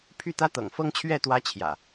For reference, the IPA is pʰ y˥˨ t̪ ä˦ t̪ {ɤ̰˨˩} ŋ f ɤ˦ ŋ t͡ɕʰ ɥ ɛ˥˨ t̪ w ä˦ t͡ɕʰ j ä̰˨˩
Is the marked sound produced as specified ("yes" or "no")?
yes